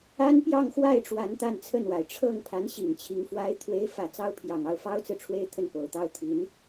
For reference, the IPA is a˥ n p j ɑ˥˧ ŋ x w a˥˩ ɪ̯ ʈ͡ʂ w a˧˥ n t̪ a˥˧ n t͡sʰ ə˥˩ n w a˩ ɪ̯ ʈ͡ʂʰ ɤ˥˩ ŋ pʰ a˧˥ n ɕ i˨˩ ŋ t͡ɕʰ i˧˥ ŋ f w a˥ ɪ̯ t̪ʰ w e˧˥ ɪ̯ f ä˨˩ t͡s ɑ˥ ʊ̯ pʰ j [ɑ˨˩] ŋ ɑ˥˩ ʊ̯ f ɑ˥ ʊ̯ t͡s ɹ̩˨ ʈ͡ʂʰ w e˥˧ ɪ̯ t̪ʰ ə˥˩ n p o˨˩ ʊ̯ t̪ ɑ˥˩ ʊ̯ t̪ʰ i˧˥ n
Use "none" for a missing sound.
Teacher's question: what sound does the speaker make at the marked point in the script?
ɑ˨˩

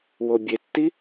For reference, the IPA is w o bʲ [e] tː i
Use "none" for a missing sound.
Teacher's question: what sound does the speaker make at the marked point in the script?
e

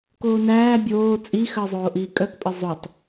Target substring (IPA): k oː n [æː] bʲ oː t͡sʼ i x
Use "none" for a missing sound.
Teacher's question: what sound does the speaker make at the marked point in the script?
æː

